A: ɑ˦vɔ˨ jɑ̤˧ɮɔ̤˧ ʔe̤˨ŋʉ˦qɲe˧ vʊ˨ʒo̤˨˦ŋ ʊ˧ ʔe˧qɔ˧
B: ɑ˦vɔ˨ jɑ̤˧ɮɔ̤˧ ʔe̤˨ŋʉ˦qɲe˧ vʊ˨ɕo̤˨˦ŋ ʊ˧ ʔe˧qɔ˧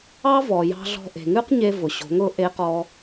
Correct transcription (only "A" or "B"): B